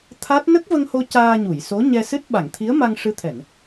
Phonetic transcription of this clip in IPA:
t̪ʰa˦˥t̚ nə˦˥k̚və˧ŋho˧ caː˧ɲu˨˩˨jso˧˥ ɲɛ˧sɨ˦˥t̚ ɓa˨˩˨ŋt̪ʰi˧˥ə̯ma˧ŋ ʂɨ˧˥t̪ʰɛ˨˩˨n

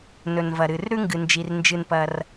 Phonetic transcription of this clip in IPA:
nɵ˩nvɐ˩ɾɨ˩r ɾʉ˥ŋɡɨ˩nd͡ʒi˩r nd͡ʒɨ˩npɐ˩r

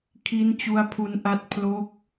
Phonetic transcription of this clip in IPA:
kʰi˦˥nt͡ɕu˦˥a̯pʰu˦˥nʔa˦˥t̚ pʰlo˦˥k̚

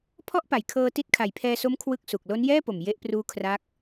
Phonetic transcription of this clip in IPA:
pʰɔ˥˩ʔpa˨˩jkʰɤː˧ ti˦˥t̚kʰa˨˩jpʰɛː˧so˦˥m kʰwɯ˥˩k̚su˨˩k̚ lo˦˥njɛː˥˩po˨˩m je˦˥ʔpruː˦˥ kʰra˦˥k̚

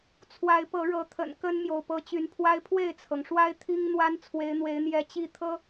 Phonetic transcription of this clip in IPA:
t͡sʰwa˨˦ɪ̯pɤ˨˦ɻɤ˨˦t̪ʰə̰˨˩n kə˦nmjo˨ʊ̯ pɤ˨˦t͡ɕy˨˦npʰwa˦ɪ̯ pʰwe˥˨ɪ̯t͡sʰɤ˩ŋʂwa˦ɪ̯ t̪ʰi˦ŋn̪wa˦n t͡sʰwe˨˦ɪ̯n̪we˨˦ɪ̯n̪jɛ˨˦ t͡ɕi˥˨t̪ʰɤ˦

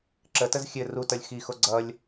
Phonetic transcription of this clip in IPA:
ǁətəz xʲɘ rutʌlʲ xixo ɡ͡ǀʌlʲ

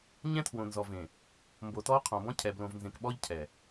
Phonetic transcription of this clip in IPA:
ɲɛ̃˦tʰwõ˨nzɔ˨vẽ˨ | mbo˨tɔ˦ qʰɔ̃˨bɔ̃˦ cʰɛ˨ blõ˨vnzẽ˨kɓɔ˦ʎ cʰɛ˨

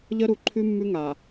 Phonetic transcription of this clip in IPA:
ʎə˦ ɾu˨ǃʰʉ˦ mːʉ˦ŋa˨

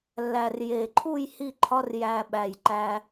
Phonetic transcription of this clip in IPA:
lːæ˨˩rje˨˩ǃʰu˥˧j hi˥˧ǃʰɒ˦˥r jæ˧ ɓæ˨˩j ǃæ˧

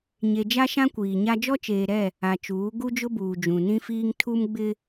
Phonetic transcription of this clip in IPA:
ɲe˨d͡ʒa˦ ʃã˦kʷiː˨ɲa˦ d͡ʒɔ˦t͡ʃeː˨ɾɛ˦˨ | a˨t͡ʃuː˨˦ ɡu˦d͡ʒʊ˦buː˨ d͡ʒũ˨nĩ˦fiː˦ŋ tʰu˦mɡ͡bɪ˦

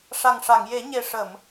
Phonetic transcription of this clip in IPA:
ʂa˨˩ŋʂa˨˩˨ŋje˨˩˦ ɲe˨˩ ʂə˨˩˨m

